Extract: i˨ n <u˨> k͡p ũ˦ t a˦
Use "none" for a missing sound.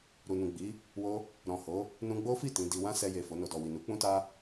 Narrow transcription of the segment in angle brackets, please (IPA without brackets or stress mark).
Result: u˨˦